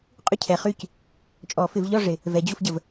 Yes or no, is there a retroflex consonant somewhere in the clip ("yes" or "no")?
yes